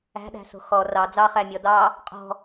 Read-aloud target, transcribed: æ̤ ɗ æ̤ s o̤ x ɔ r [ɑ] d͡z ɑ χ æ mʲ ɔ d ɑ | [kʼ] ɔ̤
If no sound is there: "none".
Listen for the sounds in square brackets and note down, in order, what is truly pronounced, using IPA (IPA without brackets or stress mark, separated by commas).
ɑ, qʼ